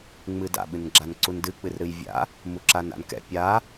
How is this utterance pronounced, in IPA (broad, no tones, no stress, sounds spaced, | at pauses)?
ŋ͡m ɨ d a̰ ɓ ɨ n ɡ͡ǁ a n ǀ u n d ɨ k͡p ɨ r ɾ ɨ j vʲ a̰ | m u ǁ a n a̰ n k ɛ̰ pʲ a